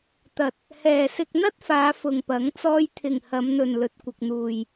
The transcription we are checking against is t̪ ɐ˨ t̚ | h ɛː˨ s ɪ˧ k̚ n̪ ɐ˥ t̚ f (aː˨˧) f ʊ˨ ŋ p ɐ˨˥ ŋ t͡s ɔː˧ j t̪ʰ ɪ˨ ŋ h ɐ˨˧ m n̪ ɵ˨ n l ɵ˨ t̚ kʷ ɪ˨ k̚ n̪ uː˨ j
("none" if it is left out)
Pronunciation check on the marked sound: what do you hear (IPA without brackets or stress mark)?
aː˨˧